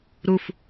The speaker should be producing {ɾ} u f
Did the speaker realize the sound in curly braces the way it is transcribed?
yes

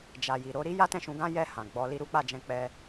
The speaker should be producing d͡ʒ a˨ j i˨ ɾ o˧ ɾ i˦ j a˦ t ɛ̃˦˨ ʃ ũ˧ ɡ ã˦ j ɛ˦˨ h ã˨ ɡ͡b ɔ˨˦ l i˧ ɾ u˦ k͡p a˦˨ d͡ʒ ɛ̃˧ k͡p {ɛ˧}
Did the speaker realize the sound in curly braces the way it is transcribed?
yes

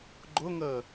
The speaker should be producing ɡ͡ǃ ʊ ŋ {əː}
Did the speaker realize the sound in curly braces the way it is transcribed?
yes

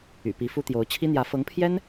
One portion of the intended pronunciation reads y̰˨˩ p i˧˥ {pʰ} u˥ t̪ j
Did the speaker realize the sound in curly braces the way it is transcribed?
no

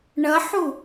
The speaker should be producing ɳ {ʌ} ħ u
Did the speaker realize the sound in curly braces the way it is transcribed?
yes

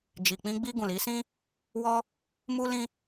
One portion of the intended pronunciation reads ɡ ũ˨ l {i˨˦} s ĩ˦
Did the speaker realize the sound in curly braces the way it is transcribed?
yes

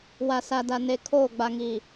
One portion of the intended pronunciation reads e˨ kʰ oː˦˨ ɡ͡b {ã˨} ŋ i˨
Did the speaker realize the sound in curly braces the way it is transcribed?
no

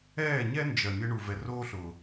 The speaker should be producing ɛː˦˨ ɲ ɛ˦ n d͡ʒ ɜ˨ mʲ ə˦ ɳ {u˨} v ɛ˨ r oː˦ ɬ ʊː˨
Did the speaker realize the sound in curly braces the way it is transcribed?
yes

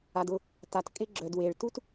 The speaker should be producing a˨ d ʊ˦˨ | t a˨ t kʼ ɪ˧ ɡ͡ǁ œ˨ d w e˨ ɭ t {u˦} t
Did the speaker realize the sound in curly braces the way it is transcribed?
yes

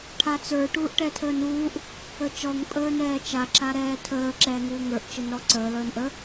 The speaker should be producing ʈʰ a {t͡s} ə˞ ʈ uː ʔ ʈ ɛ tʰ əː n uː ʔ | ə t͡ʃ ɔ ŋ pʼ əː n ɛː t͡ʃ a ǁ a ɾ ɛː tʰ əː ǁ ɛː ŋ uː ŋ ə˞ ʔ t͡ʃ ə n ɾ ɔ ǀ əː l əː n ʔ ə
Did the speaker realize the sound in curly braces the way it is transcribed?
yes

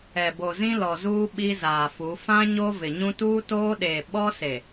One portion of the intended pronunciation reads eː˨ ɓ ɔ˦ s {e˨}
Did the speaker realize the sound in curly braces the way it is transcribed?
yes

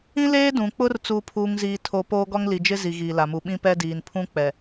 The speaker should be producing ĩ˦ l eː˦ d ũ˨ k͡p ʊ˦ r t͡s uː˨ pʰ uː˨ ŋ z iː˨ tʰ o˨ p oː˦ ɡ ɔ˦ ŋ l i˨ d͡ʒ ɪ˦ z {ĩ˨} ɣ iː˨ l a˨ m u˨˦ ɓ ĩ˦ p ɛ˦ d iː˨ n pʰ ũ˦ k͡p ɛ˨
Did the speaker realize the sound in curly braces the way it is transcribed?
no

